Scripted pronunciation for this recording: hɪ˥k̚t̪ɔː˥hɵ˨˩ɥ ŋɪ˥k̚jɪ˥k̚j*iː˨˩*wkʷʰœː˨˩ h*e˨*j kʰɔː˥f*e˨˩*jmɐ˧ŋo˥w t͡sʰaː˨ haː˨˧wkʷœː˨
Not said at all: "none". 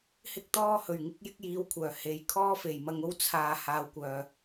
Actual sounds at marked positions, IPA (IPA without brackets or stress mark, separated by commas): iː˨˧, e˨, e˨˩